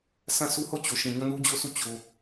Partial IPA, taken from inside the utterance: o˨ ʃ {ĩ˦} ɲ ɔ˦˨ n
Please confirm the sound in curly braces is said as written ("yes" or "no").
no